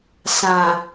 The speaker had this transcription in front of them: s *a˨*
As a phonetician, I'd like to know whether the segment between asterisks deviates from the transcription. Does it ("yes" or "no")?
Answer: yes